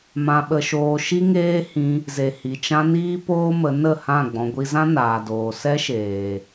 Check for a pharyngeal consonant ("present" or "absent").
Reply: absent